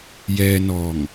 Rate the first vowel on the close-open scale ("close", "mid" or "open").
mid